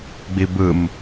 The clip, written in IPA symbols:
ɡ͡bibɯm

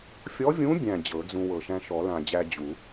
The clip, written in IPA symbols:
fʲɔ˧˥vʲũ˧˥bʲæ̃˨˩ d͡ʑɤ˨˩˦d͡zũ˧wɤ˨˩ ʃæ̃˧ʃɔ˨˩˦lã˨˩d͡ʑæ˧ d͡ʑu˨˩˦

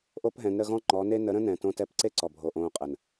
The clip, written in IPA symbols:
ʔo˦pɦɛ̃˨˦nɾə˧ɣɔ̃˦ ŋ͡ǃɔ˨˦ne˦ nə˨˦ ɾə̃˦nɛ̃˨tõ˧tɛ˧p ǀe˦ǀɔ˨bʱo˨ ʔõː˧qʼə˨n

